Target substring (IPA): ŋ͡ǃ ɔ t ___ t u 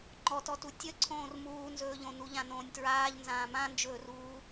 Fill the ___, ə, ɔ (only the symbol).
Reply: ɔ